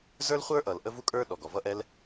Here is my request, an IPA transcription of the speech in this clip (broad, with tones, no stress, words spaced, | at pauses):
zə˞˥lχʷə˞˥ʔʌ˩l ʔə˥vu˥kʼə˞˥ ɗɔ˩ɡɔ˩vʌ˥ʔɛ˥l